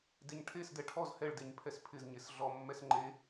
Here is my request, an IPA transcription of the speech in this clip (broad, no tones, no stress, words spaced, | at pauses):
deɲʈʰesdɛ ʈʰɔz hɛɭdeɲ pʰɛspʰɪzɲes ɮɔmːɛs ŋ͡ǃe